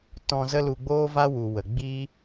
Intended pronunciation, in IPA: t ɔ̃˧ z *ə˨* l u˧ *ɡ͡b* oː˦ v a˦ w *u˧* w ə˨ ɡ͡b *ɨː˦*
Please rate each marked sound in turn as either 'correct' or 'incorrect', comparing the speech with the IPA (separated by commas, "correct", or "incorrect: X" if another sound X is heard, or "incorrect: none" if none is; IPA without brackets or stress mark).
incorrect: ə˦, correct, incorrect: u˨, incorrect: iː˦